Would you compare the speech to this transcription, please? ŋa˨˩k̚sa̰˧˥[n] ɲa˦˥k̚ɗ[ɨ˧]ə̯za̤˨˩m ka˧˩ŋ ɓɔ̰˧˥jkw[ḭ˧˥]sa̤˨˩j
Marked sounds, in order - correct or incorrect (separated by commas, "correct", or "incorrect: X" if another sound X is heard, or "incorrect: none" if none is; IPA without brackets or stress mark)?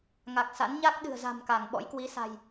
correct, incorrect: ɨ̤˨˩, incorrect: i˨˦